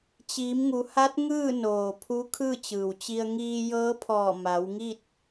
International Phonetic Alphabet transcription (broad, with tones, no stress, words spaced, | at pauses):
t͡ɕiː˩˧mŋu˩˧ha˧˥t̚ ŋɯː˥˨noː˩ pʰu˧˥kʰɯː˥˨t͡ɕɯː˩wt͡ɕi˧ə̯ ŋiː˧jɤː˧˥pʰɔː˧˩ ma˩˧wŋi˥˨t̚